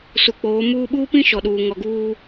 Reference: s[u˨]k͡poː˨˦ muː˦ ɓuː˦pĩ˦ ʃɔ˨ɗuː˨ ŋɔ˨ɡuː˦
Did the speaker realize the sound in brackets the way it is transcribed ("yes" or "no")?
yes